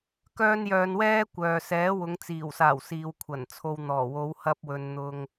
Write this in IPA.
k œː˥ n j œː˧ n w ɛː˥ kʷ œː˨ s ɛː˨˥ w ʊ˨˧ ŋ t͡s iː˨˩ w s aː˨˩ w s iː˨ w kʷʰ ɐ˨˩ n t͡sʰ o˧ w n̪ ɔː˨˩ w o˨˧ w h ɐ˧ p̚ w ɵ˨ n n̪ ʊ˧ ŋ

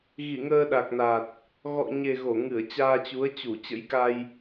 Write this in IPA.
ɣ i˧˩ ŋ əː˧ ɗ a˨˩ k̚ n a˨˩ t̚ | ɣ ɔ̰˧˨ ɲ e˨˩ ɣ o˧˩ ŋ ɨ˧˩ ə̯ t͡ɕ aː˧ t͡ɕ u˨˦ ə̯ t͡ɕ u˧˩ t͡ɕ ə̰˧˥ j k a˧ j

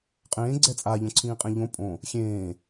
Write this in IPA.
qʼ ẽː ɡ͡ǀ ɛ t͡sʼ a ʎ õ ǀʰ ĩː qʼ ẽ ʎ õ pʼ õ | xʲ ẽː

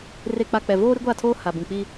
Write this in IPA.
r e˨ k͡p a˨ k͡p ɛ˨ v oː˦ ɾ i˦ ɡʷ a˦˨ tʰ oː˦ h a˨ b ũ˨ k͡p i˦

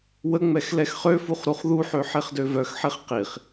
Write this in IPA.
w ə ŋ͡m ɛ x l ɛ x χ ø f u χ ɾ u χ ð u ħ ø ħ e χ d ø v œ x ħ e χ q i χ

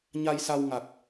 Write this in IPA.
ɲ a˧ j s a˧ w ŋ a˨˩ k̚

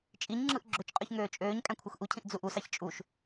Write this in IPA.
t͡ʃʼ i ɲ ŋ͡ǁ ɯ ʔ ɡ͡ǁ ø t͡ʃ qʼ y ç ŋ øː t͡ʃʼ øː ɲ kʼ æ̃ kʷʰ ɯ x ʔ u cʰ ĩ ʔ d͡z u ʔ u s ɑ ç t͡ʃʼ u ʃ

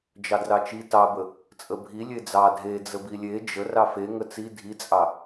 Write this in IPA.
d͡ʒ ɑ d r ɑ t͡ʃ i t ɑ b ə | t͡sʼ ə bʱ i lʲ e d͡z ɑ dʱ e d͡z ə b i lʲ e d͡ʒ ə r ɑ f e ŋ ə t͡s i dʱ i t͡sʼ ɑ

